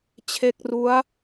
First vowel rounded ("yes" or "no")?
no